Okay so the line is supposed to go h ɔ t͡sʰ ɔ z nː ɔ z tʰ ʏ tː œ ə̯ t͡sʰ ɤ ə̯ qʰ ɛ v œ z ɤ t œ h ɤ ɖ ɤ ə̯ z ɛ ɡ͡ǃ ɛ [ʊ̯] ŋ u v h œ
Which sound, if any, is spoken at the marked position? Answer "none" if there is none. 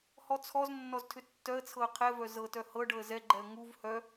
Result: ə̯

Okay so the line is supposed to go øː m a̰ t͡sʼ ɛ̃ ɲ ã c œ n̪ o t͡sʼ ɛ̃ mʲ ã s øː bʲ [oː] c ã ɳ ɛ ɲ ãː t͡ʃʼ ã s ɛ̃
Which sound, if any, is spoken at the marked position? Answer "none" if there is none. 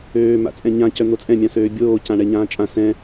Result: oː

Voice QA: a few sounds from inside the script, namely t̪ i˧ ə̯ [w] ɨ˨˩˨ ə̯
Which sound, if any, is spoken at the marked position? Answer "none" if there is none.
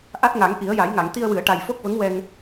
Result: w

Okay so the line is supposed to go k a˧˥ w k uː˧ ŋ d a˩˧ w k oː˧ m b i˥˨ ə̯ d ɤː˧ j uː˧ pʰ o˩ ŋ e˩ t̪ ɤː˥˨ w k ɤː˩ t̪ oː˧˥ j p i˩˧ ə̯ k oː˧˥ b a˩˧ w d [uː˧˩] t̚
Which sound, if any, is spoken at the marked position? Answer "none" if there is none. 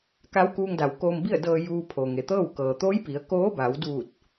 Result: uː˧˩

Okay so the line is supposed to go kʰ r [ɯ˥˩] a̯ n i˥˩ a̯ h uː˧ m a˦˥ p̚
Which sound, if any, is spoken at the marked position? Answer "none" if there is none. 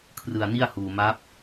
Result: ɯ˧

